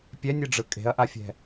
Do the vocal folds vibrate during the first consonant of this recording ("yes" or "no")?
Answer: no